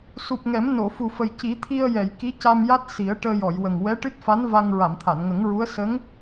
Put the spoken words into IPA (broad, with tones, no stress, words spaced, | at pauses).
su˨˩p̚ŋɛ˨˩˦m no˨˩˨ fu˨˩fə˨˩j ci˨˩˦t̪ʰi˧ə̯ jɛ˨˩˨jki˧˥ca˧mja˦˥t̚ si˨˩˦ə̯ ʈəː˧jɔ˨˩˨jwə˨˩ŋ wɛ˧˥ʈɨ˦˥t̚fa˧˥n va˧ŋ ɹa˨˩˨mt̪ʰa˨˩˨nŋə˨˩˦ŋɹu˧˥ə̯ sə˧˥ŋ